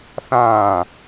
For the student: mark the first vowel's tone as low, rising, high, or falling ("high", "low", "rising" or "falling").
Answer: falling